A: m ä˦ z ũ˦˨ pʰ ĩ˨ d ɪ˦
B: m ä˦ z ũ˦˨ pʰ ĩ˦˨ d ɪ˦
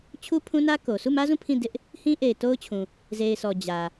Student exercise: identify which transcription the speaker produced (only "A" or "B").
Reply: B